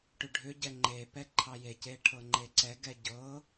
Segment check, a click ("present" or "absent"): present